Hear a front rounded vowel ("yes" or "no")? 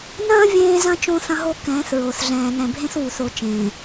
no